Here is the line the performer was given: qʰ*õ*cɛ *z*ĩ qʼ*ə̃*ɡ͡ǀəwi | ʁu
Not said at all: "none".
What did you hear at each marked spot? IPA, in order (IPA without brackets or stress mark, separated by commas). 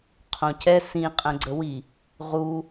õ, s, ə̃